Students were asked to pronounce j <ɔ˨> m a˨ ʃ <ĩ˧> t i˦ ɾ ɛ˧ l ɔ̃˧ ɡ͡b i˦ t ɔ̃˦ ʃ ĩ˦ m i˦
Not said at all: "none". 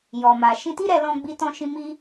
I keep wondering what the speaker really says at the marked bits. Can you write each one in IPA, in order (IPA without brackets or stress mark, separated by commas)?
ɔ˨, ĩ˧